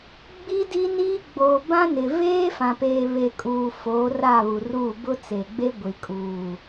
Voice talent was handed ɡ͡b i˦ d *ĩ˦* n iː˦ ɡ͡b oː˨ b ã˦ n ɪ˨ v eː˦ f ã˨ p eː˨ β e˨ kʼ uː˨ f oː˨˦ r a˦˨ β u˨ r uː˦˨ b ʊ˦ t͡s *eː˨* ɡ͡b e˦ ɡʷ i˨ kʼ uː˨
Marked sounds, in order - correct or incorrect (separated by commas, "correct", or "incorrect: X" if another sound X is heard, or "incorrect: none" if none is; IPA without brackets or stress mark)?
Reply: incorrect: i˦, incorrect: e˨